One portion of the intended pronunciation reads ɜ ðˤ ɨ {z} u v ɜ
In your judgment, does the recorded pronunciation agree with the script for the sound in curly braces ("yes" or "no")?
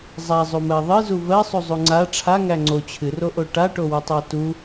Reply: yes